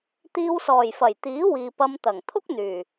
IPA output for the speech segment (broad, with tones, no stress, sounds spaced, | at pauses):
t̪ iː˧ w s ɔː˨˩ j f ɐ˨˩ j t̪ iː˨˥ w iː˨ p ɐ˧ m t̪ ɐ˨˩ ŋ t̪ʰ ʊ˥ k̚ n̪ yː˨˩